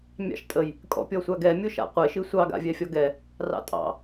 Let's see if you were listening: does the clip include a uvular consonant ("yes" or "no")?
yes